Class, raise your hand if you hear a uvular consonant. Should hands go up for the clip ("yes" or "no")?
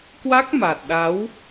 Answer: no